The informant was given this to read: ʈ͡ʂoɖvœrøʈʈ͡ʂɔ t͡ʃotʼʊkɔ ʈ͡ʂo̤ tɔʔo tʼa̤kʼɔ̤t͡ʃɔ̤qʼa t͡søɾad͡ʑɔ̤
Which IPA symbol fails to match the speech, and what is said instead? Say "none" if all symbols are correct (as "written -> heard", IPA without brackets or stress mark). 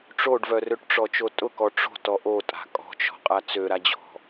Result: none